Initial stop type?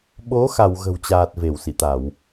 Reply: implosive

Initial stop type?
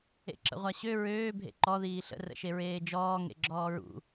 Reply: click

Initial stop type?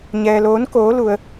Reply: plain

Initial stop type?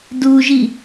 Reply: plain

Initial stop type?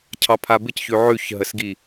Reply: aspirated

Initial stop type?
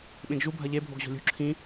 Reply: implosive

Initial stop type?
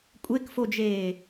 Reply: ejective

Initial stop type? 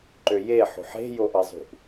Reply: click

